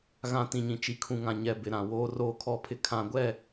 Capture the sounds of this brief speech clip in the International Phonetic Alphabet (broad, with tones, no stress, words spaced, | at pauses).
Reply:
ɣã˨ tĩ˨ɲĩ˨ t͡ʃi˨kʰũ˨ŋã˨ ɲɛ˨ bɪ˨ɾã˨ woː˨roː˨kʰɔ˨pʰɪ˨ kʰã˨ɡʷɛ˦˨